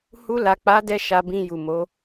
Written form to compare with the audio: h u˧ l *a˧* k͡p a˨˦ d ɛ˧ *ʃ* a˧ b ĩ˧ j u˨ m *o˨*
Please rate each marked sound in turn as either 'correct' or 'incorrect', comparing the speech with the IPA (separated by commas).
incorrect, correct, incorrect